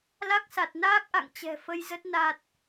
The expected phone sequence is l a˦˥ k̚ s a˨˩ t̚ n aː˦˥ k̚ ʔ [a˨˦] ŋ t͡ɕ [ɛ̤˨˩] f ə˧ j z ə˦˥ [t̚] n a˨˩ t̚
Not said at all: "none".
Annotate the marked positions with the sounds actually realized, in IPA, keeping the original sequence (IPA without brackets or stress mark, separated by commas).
a̰˧˨, ɛ̤˨˩, t̚